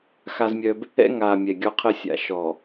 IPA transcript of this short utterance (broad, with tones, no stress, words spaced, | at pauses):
xa˦zmʲœ˦b | ɛ̰˦ŋaː˨ mʲɛ˨ɡʲɔ˦qʰəː˦ sʲa̰˨ʃɔ˨